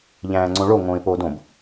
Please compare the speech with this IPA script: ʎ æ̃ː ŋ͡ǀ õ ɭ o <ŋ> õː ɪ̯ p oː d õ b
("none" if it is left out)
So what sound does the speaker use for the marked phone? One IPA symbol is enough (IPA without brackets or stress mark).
ŋ